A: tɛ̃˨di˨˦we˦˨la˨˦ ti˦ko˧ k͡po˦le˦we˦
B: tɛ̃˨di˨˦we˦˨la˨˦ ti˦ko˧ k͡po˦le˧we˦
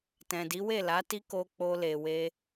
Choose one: B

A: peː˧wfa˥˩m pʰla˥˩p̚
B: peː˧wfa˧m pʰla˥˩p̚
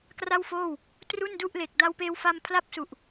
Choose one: B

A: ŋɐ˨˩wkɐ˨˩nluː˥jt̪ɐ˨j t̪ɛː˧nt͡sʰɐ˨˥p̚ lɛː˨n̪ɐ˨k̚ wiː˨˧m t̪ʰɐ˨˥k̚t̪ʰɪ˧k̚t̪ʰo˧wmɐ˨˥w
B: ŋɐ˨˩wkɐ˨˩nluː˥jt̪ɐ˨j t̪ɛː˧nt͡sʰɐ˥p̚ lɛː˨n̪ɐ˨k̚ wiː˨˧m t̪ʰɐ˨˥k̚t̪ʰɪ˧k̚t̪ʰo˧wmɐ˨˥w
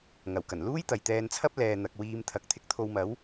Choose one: B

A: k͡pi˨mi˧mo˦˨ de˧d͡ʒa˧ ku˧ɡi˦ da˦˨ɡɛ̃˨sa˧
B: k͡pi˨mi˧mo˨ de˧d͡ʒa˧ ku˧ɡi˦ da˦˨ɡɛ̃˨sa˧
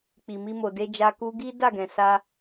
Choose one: B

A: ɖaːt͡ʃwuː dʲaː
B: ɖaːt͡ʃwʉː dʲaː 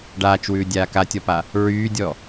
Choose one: B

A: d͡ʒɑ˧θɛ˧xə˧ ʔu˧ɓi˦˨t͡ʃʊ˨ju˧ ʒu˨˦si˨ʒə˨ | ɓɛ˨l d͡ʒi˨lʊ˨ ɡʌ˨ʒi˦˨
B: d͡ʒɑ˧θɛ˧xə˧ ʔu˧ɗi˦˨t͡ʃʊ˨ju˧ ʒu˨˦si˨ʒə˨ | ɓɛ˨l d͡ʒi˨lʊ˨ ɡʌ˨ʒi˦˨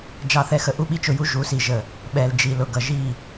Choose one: A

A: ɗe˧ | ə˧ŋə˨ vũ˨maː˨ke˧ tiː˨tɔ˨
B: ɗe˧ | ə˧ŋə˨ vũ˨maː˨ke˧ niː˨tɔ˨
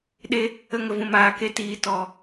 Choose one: A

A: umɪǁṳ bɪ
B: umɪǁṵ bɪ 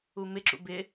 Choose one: B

